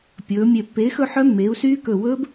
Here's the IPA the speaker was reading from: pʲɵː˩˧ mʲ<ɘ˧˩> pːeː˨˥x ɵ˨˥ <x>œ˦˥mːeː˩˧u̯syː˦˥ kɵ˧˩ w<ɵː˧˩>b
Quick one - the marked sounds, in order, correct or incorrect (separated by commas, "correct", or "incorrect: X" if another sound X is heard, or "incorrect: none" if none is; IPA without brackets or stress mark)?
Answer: incorrect: e˧˩, incorrect: ħ, incorrect: ɵː˦˥